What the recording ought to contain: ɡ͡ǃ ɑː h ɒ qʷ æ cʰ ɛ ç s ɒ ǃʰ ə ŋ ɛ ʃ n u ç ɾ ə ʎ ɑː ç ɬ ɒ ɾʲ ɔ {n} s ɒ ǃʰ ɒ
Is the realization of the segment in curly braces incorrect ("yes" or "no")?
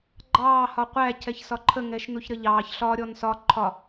no